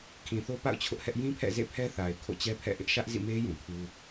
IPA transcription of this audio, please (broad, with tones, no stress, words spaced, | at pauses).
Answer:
kʰĩ˨θo˦pa̰˦˨ʊ̯ t͡ɕʰʊ˦ʔhɛ˦ʔ jĩ˦pʰɛ̰˦˨ zḛ˦˨pʰɛ˦θa˨ɪ̯ kʰo̰˦˨t͡ɕɛ˦pʰɛ̰˦˨ʔɪ˦ʔ ʃä˦ʔzḭ˦˨me˦ jũ˨kʰu˦